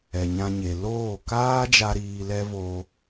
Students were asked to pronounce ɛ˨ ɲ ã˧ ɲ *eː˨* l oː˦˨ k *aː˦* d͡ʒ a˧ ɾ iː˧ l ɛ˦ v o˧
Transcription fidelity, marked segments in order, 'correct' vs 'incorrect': incorrect: e˨, correct

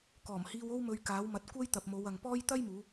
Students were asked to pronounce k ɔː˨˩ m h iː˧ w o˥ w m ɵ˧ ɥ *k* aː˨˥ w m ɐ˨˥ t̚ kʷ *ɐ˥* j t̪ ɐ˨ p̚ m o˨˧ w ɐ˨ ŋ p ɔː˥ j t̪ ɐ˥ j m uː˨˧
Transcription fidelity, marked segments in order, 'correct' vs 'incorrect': correct, correct

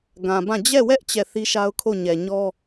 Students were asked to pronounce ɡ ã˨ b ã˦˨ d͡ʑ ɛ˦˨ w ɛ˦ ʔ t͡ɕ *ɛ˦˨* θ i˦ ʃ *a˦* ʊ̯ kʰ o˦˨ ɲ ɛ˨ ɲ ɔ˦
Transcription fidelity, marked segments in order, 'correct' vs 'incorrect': correct, correct

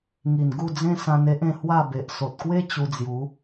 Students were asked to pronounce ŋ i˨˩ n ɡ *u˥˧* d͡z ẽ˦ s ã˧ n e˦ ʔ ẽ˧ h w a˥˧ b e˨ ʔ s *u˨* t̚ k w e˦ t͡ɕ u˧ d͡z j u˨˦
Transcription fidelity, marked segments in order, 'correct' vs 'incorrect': correct, incorrect: o˨

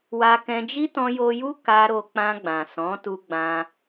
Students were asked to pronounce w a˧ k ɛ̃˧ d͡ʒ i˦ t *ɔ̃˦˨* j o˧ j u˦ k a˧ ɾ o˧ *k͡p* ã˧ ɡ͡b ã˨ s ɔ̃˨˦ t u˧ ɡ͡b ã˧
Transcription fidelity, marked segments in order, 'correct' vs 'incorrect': incorrect: ɔ̃˧, correct

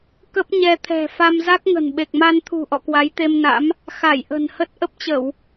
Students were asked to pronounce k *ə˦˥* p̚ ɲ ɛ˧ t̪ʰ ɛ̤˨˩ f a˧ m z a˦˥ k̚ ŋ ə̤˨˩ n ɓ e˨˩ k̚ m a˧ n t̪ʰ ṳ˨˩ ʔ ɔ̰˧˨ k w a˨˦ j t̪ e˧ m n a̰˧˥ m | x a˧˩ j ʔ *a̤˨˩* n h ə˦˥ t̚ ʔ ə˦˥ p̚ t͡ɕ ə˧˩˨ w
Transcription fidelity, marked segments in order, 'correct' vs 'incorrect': correct, incorrect: ə̤˨˩

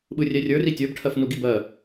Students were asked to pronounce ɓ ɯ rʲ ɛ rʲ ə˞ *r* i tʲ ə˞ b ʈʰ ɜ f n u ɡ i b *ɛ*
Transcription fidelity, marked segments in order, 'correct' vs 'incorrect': correct, incorrect: ɜ

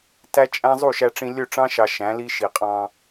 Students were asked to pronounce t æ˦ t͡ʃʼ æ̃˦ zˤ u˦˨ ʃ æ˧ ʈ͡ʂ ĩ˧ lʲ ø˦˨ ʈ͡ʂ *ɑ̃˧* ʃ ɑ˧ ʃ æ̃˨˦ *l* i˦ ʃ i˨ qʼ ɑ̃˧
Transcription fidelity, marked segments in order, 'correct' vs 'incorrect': incorrect: ɑ̃˦, correct

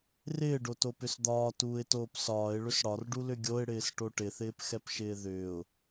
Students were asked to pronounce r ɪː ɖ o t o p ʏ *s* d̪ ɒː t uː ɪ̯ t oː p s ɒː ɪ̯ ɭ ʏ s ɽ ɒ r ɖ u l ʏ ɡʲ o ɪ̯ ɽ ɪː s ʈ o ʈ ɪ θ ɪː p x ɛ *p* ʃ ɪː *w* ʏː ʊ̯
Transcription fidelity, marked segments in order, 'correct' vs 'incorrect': correct, correct, incorrect: ð

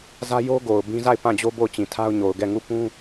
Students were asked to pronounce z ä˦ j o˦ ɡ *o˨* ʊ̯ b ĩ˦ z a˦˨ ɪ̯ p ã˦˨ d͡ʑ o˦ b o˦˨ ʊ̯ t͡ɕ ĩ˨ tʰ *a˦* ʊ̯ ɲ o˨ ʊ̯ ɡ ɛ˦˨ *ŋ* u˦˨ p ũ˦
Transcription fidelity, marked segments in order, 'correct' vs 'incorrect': correct, correct, correct

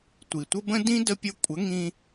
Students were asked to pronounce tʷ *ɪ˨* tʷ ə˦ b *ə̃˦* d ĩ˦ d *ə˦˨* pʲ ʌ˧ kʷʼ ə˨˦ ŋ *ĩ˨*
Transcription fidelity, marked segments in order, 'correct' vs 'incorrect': incorrect: i˨, correct, incorrect: ə˧, incorrect: ĩ˧

